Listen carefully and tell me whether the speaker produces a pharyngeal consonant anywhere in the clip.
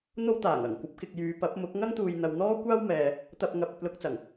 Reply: no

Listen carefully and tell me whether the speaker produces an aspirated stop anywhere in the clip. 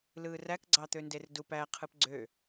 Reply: yes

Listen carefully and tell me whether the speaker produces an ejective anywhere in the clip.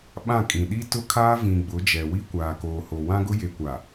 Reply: yes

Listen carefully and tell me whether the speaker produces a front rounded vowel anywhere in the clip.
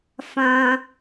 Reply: no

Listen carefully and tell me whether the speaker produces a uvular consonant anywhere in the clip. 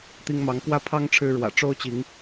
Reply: no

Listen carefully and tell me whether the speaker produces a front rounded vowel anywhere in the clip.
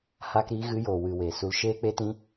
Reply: no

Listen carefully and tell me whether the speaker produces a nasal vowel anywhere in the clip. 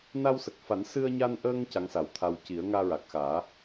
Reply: no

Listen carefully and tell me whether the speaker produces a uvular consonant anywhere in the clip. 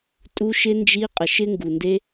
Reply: yes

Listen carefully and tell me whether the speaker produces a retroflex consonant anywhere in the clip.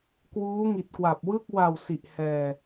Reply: no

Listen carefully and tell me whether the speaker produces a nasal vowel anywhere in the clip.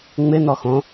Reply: yes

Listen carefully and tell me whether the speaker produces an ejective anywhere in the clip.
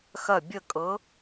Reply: yes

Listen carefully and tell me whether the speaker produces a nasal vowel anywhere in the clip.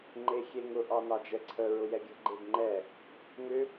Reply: no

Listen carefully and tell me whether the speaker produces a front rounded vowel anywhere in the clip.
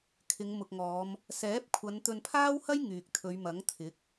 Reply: yes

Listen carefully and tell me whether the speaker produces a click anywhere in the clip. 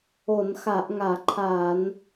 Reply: yes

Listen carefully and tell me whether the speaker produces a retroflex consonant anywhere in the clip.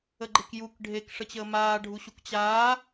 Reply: yes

